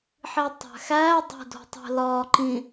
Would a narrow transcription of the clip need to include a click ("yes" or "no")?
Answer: yes